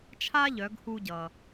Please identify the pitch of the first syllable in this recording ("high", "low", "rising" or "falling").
high